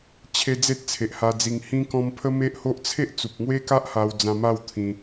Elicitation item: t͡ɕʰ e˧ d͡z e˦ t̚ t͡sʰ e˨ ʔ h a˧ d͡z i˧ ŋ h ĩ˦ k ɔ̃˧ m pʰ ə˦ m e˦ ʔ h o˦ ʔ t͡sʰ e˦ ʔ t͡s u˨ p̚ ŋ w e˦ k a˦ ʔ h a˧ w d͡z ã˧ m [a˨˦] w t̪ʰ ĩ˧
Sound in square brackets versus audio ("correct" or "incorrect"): incorrect